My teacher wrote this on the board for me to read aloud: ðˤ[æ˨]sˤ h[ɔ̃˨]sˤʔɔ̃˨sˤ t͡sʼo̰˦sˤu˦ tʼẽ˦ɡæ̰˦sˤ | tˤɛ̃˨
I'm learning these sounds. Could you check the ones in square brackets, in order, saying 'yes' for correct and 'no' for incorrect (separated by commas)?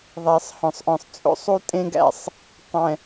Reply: yes, yes